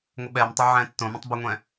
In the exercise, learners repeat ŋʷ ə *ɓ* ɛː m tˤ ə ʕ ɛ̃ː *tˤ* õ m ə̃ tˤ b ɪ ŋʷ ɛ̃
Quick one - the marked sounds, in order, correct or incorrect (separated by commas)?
correct, incorrect